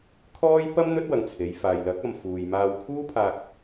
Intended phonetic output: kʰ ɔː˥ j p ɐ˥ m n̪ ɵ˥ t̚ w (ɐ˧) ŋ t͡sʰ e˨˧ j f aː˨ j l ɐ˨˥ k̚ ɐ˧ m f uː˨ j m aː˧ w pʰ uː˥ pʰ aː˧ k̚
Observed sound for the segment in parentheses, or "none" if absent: ɐ˧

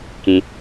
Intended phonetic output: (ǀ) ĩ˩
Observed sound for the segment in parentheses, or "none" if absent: k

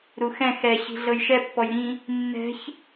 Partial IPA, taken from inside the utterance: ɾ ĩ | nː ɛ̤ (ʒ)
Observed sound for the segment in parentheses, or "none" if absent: ç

